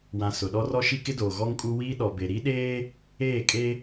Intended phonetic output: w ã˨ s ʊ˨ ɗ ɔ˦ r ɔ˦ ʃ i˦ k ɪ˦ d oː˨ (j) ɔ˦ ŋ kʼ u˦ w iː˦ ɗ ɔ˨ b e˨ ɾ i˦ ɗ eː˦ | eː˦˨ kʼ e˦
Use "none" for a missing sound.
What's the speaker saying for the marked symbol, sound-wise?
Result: ɣ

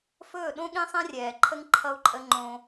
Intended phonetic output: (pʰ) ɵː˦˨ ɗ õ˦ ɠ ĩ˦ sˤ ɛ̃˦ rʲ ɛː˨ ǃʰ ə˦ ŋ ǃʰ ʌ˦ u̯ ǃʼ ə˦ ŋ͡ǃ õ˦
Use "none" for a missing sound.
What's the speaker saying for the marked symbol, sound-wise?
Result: f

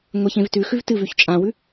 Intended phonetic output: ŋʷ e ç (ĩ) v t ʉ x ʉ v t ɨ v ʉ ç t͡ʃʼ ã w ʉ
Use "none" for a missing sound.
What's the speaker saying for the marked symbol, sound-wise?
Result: ẽ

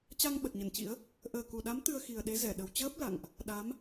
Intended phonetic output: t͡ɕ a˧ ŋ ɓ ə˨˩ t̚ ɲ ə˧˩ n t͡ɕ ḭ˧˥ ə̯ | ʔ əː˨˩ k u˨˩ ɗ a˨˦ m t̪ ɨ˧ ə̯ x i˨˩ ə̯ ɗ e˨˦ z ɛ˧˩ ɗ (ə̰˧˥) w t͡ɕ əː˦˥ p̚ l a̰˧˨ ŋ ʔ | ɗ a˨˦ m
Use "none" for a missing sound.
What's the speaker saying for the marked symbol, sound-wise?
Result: ə˨˩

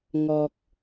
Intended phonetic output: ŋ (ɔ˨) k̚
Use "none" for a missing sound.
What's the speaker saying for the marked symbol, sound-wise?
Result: ɔ˨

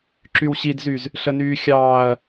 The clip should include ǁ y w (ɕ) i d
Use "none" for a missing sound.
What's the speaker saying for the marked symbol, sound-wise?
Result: ɕ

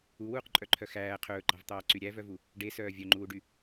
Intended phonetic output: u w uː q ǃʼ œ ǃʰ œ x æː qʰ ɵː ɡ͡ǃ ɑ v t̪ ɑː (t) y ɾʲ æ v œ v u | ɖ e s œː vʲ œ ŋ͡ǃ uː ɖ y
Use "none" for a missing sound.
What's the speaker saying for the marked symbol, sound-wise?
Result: ǀ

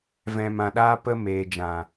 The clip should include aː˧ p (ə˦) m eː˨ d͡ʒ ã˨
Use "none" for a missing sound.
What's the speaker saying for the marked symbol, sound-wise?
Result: ə˧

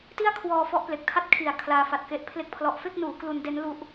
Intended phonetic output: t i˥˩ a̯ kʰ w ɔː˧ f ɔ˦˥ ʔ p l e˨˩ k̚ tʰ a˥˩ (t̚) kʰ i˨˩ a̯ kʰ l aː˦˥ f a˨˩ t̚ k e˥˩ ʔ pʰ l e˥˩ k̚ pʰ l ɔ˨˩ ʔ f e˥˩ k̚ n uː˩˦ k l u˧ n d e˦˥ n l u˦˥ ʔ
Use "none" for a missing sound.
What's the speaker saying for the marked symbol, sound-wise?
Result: t̚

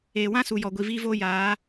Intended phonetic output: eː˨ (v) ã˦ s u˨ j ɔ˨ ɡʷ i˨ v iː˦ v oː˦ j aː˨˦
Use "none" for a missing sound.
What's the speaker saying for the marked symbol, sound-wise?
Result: w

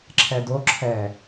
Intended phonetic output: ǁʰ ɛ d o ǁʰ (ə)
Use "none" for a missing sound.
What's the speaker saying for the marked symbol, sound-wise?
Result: ɛ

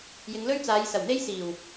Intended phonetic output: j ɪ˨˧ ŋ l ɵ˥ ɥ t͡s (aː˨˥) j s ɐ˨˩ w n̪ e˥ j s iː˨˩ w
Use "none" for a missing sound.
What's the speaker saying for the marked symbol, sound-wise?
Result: aː˨˧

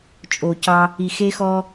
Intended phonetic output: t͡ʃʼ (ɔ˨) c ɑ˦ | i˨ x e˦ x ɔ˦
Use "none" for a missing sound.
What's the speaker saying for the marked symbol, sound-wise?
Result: o˨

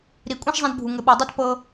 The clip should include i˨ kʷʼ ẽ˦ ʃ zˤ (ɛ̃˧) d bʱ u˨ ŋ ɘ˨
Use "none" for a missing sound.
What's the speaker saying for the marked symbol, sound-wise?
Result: ɛ̃˧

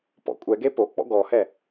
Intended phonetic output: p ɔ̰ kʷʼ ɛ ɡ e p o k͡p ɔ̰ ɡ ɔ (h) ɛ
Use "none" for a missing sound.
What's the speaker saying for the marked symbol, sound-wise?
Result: h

